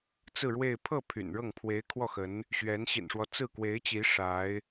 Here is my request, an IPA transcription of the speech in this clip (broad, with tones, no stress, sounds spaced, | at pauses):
t͡s ɹ̩˥˧ ɻ w e˥˧ ɪ̯ pʰ ɤ˥˩ pʰ y̰˨˩ n ɻ ɤ˥˩ ŋ pʰ w e˧˥ ɪ̯ kʰ w ɔ˥˩ x ə˧˥ n | ɕ ɥ ɛ˧˥ n ɕ ḭ˨˩ n ʂ w ɔ˦ t͡s ɹ̩˥˩ k w e˧˥ ɪ̯ t͡ɕ i˧˥ ʂ a˧˥ ɪ̯